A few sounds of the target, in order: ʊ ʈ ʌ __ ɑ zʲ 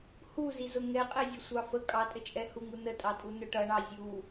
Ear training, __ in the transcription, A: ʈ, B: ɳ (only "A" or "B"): B